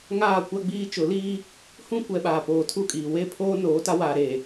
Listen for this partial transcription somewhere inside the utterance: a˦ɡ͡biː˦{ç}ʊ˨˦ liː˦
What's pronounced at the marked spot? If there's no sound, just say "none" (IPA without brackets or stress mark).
t͡ʃ